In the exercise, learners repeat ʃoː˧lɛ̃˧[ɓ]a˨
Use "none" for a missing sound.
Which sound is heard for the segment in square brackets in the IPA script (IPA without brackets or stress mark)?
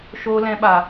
ɓ